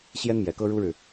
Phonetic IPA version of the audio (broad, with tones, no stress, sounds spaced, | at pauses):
ɕ j ɛ˥ n m j ɛ˨˩ k ɤ˥ ɻ u˥ ɻ ɻ̩˨